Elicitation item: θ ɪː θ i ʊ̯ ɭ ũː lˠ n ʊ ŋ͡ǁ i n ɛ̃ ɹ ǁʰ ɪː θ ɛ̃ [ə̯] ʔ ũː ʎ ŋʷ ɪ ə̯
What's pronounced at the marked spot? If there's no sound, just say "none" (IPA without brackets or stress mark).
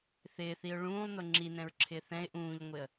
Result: ɪ̯